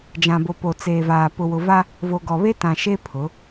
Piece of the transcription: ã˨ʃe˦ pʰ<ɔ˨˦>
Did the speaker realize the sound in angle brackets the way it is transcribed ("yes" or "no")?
no